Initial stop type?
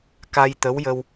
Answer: plain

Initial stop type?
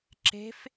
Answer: click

